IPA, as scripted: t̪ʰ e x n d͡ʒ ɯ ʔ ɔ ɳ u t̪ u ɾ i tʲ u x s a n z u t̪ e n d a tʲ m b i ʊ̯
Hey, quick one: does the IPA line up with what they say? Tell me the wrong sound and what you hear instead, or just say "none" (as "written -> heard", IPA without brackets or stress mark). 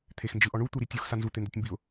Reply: none